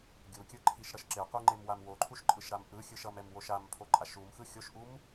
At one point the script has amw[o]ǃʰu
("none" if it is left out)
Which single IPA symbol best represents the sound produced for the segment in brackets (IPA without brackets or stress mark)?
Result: o